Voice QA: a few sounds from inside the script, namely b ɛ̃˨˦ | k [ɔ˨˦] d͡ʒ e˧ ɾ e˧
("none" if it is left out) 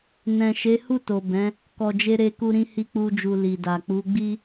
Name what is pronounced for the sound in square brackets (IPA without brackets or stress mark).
ɔ˨